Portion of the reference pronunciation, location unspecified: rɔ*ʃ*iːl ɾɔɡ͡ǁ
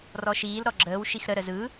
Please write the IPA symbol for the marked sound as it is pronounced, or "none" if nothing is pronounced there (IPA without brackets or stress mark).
ʃ